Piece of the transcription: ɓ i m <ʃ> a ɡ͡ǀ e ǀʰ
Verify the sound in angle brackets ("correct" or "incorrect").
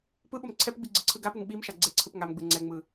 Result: correct